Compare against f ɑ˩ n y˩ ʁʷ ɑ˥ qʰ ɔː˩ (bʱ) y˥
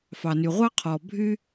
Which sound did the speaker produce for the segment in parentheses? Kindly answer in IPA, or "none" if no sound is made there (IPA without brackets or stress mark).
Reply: bʱ